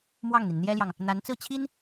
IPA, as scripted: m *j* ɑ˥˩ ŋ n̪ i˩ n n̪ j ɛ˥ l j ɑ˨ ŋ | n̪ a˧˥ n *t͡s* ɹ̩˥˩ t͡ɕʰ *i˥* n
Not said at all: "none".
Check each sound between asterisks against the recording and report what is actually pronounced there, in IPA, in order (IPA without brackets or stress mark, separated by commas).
w, t͡s, i˥